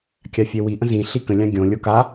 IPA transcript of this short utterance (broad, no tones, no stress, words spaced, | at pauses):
kʲafʲewi ʔə̃zĩ ɬikə̃ lʲãɡʲõ lʲoka